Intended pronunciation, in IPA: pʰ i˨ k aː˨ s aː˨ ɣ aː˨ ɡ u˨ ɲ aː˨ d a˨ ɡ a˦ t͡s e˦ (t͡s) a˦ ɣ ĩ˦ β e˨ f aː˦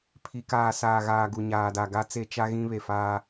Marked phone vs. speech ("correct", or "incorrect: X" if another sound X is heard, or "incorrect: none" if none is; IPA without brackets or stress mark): incorrect: t͡ʃ